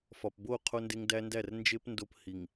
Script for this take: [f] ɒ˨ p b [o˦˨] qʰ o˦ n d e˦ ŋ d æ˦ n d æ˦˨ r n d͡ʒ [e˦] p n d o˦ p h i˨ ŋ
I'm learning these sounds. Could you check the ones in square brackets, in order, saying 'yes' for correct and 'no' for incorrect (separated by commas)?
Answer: yes, yes, yes